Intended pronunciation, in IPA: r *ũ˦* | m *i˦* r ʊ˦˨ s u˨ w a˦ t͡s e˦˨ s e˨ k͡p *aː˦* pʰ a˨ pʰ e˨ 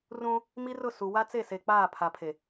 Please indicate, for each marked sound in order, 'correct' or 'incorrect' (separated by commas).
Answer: correct, correct, incorrect